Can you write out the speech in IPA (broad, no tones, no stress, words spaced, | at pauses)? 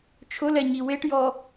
t͡ʃʰʊlɛɲi weʈjɔ